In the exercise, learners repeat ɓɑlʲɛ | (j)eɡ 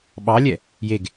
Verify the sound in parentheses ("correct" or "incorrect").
correct